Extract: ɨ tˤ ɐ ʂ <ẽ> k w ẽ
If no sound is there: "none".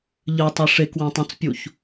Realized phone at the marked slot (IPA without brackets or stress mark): e